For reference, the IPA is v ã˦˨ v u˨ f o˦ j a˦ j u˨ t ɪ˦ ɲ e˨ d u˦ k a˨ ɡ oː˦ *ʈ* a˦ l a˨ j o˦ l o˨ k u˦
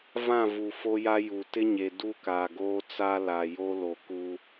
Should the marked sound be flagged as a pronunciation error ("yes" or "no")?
yes